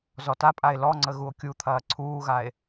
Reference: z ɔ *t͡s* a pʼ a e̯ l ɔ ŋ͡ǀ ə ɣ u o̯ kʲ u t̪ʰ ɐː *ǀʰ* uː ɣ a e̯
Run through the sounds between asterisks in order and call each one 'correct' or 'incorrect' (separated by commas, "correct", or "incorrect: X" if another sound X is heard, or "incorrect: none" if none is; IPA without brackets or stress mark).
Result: incorrect: t, correct